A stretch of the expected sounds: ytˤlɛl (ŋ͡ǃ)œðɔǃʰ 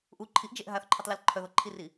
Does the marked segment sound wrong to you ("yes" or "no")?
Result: yes